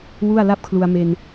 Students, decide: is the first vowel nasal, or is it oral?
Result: oral